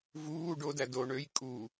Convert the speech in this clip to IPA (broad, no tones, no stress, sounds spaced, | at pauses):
v uː ɖ o d æ d o ɳ ø j kʼ u